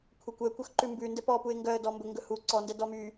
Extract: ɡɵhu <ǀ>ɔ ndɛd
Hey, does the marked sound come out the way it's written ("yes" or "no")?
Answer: yes